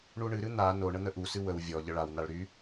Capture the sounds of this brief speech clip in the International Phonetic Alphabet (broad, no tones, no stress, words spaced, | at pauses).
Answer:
ɳuɳɨɾɨ n̪a no ɳən̪əʔusɨ wəw vʲɔ ʎəɭawnaɭ ɾy